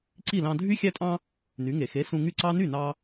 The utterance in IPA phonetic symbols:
ǀ i˥˩ l ɑ̃˧ dʱ y˥ xʲ æ˥ tʼ ɑ̃˥ | n y˩˥ ŋ e˩ x e˩˥ s ũ˧ ŋ y˥˩ ǀ ɑ˥ n y˥˩ n ɑ˧

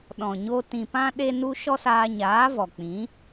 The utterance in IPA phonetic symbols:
ɗ ɔ̃˨ ɲ o˧ t ĩ˨ p ã˧ ɗ e˦ n u˦ ʃ ɔ˦ s aː˧ ɲ aː˨˦ v ɔ˨ k͡p ĩ˨˦

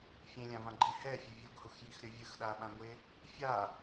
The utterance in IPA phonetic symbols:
fʲ ẽ lʲ ã v ã ɡ͡ǃ i h ɛ fʲ e vʲ u ɡ h u x j i x ɾʲ ʌ vʲ ɯ x ɗ a ɓ ã ŋʷ e | fʲ a

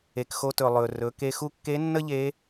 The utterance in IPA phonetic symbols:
e˩ k x o˧ t ɵ˩ lˠ ɵ˩ r ɵ˩˧ k e˧ x u˥ kː e˧˥ nː ə˥ ʎ e˧˥

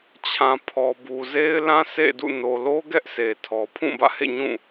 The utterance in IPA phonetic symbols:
t͡ɕʰ ã˨ pʰ ɔ˨ b u˨ z e˦ ɪ̯ l ã˦ sʰ ḛ˦˨ d ṵ˦˨ n o˨ l o˦ ɡ ɛ˦ ʔ s e˨ tʰ ɔ˨ pʰ ũ˦˨ b ä̰˦˨ h ḛ˦˨ ɲ ũ˦˨

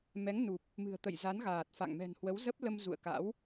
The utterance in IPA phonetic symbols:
m ɛ˨˦ ŋ n u˨˩ p̚ | m ɨ̤˨˩ ə̯ t̪ ə̰˧˨ j z a˨˦ n ɣ aː˨˩ t̚ f a̰˧˨ ŋ m ɛ̤˨˩ n h w ə˨˦ w z ə˦˥ p̚ l ə˧ m z ṵ˧˨ ə̯ k a̰˧˥ w

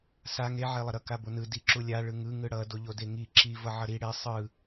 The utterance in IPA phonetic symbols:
s a ŋ e ʕ e lˠ ʌ ɾ ʌ k a b o n ɯ d i ǁ u lʲ a ɭ ɯ ŋ ɯ ŋ ɯ ɽ ʌ d o ʎ o d e ŋ i ǁ i v ʌ ʕ ʌ ɾ i ɽ e sˤ ɯ

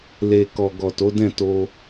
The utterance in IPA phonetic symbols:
l e˨ k ɔ˨ ɡ ɔ˨ t o˨˦ d ɛ̃˦˨ t o˧

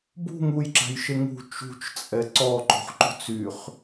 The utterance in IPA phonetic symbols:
b ṳ ŋ u j ǁ a̤ j ʃ e ŋ ṳ t͡ʃ ṳ t͡ʃ t͡sʼ ɛ ǀ ɔ ǃ o̤ χ ǃ ṳ t͡s y χ

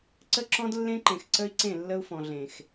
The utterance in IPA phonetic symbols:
ǀ ə˦ ǁ ɔ̃˦ d lː ẽ˦ ǃ ẽ˨ x ǀ ə˦ i̯ ǀ ẽ˦˨ lː ə˦ u̯ f ɔ̃˨ ɮ ẽ˨ x

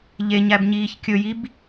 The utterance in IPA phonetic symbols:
ʎ e ɲ æ b ɲ iː ç kʲ ɵ j i b

